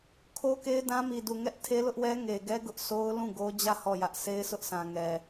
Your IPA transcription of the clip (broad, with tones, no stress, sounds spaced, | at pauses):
kʰ o˦ k e˦ ɪ̯ d ã˦ m i˨ d u˨ ŋ ɛ˦ ʔ tʰ e˦ l ʊ˦ ʔ w ɛ˦ ŋ e˨ ɡ ɛ˦ ɡ ʊ˦ ʔ sʰ o˦ ʊ̯ l ũ˦˨ ɡ o˦ d͡ʑ ä˦˨ h ɔ˦˨ j ä˦ ʔ sʰ e˦ ɪ̯ s ʊ˦ ʔ sʰ ã˨ ŋ ɛ˨